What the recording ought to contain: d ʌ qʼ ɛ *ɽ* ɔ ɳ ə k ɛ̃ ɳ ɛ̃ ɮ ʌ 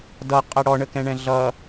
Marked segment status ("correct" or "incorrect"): correct